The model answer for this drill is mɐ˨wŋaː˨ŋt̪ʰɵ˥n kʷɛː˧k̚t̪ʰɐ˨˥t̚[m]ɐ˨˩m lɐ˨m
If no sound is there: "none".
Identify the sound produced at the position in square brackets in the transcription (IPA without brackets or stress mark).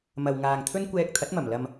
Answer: m